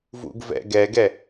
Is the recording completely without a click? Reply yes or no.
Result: yes